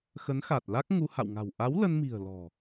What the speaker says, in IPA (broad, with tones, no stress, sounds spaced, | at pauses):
x ə˨˦ n x a˨˩ t̚ l a˦˥ k̚ ŋ u˧ h a̰˧˨ w ŋ a̤˨˩ w ʔ a˨˦ w l ə˧ n m i̤˨˩ ə̯ l ɔ̤˨˩